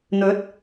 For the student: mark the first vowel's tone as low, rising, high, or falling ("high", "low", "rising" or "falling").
rising